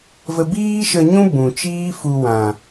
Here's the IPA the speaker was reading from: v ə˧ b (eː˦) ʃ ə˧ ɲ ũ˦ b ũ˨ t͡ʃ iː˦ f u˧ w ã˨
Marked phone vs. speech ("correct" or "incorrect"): incorrect